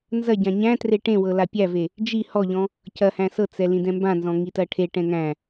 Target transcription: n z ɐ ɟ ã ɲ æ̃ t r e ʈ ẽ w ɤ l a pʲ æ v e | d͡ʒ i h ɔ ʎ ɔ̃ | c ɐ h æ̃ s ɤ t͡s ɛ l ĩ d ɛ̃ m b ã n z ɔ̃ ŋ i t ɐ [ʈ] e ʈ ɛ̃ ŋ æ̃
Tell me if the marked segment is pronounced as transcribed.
no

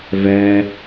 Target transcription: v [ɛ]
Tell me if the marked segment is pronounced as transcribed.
yes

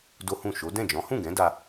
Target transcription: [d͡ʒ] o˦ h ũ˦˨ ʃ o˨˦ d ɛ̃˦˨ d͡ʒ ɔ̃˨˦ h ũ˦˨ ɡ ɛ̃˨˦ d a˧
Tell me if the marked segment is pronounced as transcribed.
no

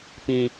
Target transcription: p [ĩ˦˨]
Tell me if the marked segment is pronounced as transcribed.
no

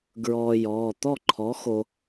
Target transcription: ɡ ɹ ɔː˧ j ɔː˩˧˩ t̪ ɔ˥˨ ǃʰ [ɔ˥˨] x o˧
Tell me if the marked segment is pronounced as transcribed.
no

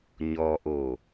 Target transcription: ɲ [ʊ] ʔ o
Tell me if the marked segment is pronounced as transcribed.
no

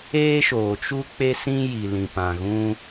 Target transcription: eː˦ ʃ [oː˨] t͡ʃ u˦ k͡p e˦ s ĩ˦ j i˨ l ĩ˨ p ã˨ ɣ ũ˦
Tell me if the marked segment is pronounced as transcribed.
yes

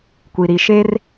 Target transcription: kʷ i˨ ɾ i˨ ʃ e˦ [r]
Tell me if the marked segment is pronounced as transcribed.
yes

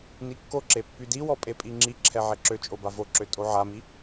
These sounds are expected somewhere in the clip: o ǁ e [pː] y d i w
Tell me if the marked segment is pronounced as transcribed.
yes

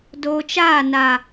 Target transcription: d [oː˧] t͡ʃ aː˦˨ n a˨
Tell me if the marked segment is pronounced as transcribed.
yes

